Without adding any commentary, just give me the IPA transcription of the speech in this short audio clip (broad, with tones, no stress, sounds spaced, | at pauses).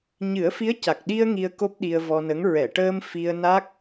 ɲ ɨ˨˩˦ ə̯ f i˧˥ ə̯ c a˨˩ k̚ ɗ i˧ ə̯ ŋ i˧ ə̯ k o˦˥ p̚ ɗ i˧ ə̯ v ɔ˧ n ə˧˥ ŋ ɹ ɛ˨˩˨ ʈ əː˧ m f i˧ ə̯ n a˦˥ k̚